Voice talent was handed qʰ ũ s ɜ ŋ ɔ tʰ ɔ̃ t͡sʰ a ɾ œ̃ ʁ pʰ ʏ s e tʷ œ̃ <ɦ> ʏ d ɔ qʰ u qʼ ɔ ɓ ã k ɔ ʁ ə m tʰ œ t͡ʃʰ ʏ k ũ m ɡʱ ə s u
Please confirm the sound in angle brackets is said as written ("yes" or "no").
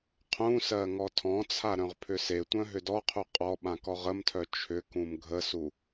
yes